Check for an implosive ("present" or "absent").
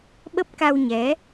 present